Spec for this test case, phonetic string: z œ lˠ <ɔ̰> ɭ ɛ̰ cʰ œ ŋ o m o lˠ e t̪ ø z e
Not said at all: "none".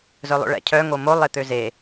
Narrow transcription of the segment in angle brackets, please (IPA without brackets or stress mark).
o̰